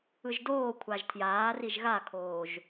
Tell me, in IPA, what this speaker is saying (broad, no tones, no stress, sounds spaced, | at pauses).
ɯ ʒ d oː kʷʰ a ʒ tʰ j aː r i ʒ ɣ a kʰ oː ʒ